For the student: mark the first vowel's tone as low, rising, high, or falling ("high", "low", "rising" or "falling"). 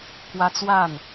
high